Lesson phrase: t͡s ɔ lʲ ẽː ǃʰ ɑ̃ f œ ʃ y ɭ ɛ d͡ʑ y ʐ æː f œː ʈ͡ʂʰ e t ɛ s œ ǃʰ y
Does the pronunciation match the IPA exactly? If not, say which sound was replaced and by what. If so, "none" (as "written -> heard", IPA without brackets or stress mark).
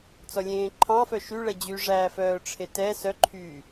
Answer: none